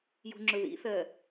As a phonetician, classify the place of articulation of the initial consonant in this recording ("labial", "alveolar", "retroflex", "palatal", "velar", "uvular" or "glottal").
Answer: palatal